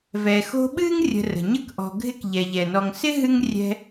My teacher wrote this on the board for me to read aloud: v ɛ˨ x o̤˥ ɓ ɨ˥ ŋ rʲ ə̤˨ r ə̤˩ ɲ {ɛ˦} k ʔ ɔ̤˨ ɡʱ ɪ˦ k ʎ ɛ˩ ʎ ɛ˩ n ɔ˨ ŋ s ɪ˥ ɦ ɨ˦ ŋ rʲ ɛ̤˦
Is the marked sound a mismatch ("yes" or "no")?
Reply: yes